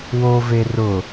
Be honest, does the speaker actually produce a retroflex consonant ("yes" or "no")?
no